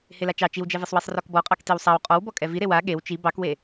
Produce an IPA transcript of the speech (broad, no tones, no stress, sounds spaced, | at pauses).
h e l a t͡ʃ ɑ t͡ʃ i w d͡ʒ ɛ v i sˤ w ɛ sˤ r ɔ k b ɔ qʼ ɑ k t i w sˤ a w qʼ ɔ w b ɔ kʼ ɛ v i ɾ e w a ɠ e w t͡ʃ i b ɑ k w e